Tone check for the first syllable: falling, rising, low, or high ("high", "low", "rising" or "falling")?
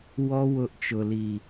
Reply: high